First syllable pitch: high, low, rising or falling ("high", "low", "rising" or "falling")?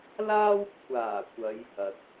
high